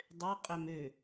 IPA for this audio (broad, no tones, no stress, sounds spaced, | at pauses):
dˤ ø qʼ ø m ø